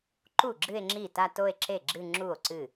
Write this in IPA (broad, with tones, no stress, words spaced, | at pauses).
ǃu˥˩ ɡ͡ǁɨ˥˧e̯ŋ͡ǁi˥˩ ta˥˧to˥˧e̯ǁe˥˩ ɡ͡ǁɨ˥˧ ŋ͡ǁu˥˩o̯ǀɨ˥˩